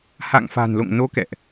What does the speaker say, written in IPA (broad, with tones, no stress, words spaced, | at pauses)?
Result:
ha̰˧˨ŋfa̤˨˩nlo̰˧˨ŋno˨˦ kɛ̰˧˨ʔ